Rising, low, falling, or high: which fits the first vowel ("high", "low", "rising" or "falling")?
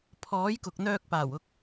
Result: rising